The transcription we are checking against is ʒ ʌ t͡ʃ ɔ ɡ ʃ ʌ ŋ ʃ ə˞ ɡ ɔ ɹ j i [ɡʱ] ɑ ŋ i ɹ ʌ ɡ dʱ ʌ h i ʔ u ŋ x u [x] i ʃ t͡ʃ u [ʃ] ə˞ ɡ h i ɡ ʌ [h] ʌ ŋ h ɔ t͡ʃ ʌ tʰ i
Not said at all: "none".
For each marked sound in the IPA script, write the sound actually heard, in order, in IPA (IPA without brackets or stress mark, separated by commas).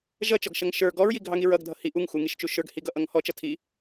ɡʱ, ŋ, ʃ, ʔ